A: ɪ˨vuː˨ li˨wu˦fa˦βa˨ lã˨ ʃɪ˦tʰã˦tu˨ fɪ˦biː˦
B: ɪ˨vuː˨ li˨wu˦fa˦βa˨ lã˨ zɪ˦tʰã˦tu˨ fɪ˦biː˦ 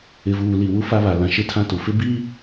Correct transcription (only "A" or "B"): A